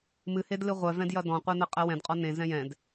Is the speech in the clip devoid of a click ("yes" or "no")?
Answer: yes